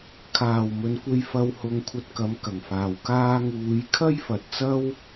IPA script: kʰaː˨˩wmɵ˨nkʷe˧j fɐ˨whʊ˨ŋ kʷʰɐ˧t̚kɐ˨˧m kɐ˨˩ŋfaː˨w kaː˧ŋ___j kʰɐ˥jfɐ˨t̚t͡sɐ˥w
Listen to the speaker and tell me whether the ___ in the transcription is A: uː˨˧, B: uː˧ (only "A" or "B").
A